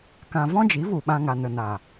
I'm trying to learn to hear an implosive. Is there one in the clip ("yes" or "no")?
yes